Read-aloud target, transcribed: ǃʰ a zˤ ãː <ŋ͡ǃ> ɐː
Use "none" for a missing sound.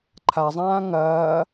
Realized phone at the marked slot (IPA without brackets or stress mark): ŋ